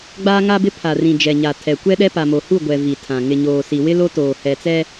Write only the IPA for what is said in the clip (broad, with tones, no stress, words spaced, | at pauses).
ɡ͡baː˦ŋa˦bɪ˦ pʰa˨rĩ˨ d͡ʒɛ˨ɲa˨ tʰɛ˨kʷɛ˦ɗɛ˦ pa˨mo˨hu˦˨ ɡʷɛ˨ vi˨tʰã˨ ŋɪ˨ɲoː˨si˨ wɪ˦lo˦toː˨ hɛ˨t͡sɛ˦